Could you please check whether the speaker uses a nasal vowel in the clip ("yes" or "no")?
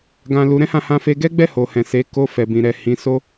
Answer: yes